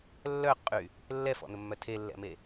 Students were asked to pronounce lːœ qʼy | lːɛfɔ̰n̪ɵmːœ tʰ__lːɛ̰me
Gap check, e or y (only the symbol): e